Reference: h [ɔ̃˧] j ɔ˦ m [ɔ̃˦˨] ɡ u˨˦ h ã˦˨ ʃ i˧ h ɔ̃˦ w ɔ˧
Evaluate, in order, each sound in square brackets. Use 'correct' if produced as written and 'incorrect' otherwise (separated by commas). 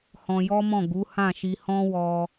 correct, correct